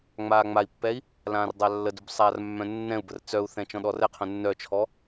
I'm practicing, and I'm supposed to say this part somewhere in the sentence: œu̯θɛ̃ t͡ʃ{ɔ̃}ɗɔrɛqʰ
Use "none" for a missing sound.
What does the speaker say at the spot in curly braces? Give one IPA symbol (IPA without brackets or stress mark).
ɔ̃